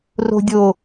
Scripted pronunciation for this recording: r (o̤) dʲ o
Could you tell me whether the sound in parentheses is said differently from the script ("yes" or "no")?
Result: no